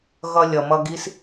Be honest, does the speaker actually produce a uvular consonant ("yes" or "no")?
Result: no